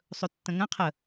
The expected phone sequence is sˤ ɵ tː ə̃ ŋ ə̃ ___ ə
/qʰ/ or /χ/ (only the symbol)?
qʰ